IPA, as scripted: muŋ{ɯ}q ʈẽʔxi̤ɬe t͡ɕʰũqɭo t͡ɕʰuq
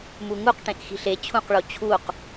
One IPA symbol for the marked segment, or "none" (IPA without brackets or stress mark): u